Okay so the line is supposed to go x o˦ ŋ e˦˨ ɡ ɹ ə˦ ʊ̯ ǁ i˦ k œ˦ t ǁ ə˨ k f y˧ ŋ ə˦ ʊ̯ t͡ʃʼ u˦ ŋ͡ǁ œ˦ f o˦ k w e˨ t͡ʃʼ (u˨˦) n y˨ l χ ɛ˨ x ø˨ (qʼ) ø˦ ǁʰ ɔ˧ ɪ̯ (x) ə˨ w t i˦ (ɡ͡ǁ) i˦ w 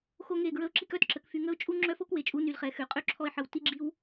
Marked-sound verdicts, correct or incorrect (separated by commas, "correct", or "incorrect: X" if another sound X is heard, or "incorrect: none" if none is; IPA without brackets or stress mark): correct, correct, incorrect: ħ, correct